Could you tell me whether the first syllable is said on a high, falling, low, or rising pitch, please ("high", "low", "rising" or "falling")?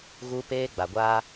high